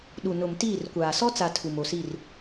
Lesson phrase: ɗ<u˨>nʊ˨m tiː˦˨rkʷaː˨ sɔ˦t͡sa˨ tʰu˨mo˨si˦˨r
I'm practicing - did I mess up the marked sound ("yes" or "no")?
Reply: no